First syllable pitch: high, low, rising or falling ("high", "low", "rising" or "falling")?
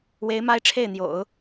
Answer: rising